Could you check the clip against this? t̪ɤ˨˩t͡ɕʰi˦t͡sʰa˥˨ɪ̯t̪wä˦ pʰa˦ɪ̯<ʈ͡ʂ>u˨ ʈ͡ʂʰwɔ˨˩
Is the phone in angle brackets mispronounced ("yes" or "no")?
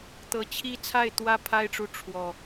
no